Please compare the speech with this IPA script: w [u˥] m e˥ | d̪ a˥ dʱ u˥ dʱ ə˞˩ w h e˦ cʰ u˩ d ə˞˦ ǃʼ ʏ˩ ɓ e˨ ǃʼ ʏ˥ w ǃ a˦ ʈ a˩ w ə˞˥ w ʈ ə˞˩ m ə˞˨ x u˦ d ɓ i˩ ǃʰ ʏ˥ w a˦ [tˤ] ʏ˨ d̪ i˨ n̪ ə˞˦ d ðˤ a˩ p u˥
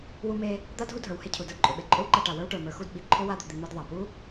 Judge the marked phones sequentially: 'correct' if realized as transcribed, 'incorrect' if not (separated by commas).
correct, incorrect